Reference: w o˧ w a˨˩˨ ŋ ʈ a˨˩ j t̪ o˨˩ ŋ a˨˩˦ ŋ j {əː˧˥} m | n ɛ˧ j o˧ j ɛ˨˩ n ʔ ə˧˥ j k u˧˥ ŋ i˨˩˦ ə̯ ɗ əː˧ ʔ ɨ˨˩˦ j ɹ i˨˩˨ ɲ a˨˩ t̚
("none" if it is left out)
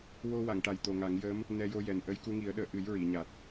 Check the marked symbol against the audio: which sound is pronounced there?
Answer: əː˧˥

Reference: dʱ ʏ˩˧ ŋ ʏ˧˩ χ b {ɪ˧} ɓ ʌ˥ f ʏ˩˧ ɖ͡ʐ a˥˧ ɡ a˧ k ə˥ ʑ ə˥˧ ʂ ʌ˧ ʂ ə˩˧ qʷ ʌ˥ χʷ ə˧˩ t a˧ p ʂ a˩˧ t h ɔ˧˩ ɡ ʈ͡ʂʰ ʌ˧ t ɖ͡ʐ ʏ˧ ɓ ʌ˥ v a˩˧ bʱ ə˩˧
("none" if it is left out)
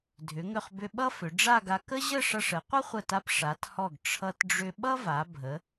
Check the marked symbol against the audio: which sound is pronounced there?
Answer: ʏ˧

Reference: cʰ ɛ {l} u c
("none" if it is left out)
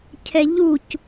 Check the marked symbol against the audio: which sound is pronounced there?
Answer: ʎ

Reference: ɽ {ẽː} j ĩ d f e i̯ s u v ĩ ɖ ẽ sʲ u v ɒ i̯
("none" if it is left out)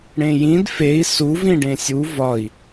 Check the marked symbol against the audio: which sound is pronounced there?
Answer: ẽ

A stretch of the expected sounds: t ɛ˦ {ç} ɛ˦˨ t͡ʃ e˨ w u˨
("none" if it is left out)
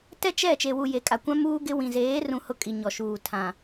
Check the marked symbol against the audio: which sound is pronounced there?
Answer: t͡ʃ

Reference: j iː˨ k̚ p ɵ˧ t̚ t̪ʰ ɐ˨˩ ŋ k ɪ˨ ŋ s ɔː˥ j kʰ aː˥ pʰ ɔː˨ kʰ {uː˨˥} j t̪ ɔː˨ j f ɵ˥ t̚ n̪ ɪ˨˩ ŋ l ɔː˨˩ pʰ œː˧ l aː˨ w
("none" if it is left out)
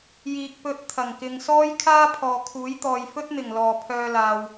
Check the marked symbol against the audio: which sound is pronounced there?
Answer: uː˨˥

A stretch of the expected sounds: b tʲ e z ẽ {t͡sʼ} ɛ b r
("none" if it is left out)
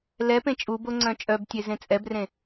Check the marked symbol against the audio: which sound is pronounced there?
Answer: t͡sʼ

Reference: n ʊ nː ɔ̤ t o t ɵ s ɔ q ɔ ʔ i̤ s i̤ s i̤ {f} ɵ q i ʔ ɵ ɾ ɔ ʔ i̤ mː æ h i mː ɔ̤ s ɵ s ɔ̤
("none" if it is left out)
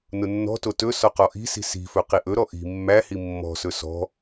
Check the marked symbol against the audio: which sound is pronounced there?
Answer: f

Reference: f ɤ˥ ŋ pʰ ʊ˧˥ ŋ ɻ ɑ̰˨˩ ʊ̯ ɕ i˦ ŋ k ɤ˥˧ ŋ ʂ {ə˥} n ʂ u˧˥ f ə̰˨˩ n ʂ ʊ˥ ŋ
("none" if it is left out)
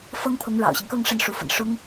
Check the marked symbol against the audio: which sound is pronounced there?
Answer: ə˥˩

